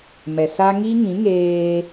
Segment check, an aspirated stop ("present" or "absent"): absent